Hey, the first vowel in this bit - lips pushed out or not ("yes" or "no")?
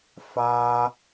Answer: no